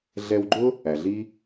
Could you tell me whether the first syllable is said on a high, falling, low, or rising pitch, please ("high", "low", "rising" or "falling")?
low